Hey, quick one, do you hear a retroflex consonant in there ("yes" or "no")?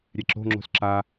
no